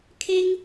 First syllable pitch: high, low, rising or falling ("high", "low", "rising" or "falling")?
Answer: high